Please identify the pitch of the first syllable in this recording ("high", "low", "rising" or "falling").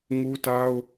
high